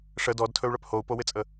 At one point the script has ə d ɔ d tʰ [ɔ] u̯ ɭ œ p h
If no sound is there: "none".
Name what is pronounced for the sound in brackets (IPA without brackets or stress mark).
ɵ